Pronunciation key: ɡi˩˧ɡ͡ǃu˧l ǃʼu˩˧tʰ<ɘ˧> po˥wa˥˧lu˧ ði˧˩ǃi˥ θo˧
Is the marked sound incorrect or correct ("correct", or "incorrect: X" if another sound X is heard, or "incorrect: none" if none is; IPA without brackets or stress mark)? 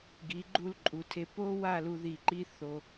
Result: incorrect: e˧